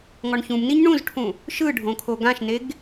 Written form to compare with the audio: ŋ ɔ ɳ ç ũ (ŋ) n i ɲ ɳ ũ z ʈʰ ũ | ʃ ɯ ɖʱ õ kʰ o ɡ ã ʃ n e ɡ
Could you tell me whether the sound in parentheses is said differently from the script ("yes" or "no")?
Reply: yes